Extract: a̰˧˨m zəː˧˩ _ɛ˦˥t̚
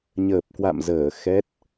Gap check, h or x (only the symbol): x